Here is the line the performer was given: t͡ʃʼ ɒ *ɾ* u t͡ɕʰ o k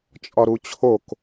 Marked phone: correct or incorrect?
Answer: correct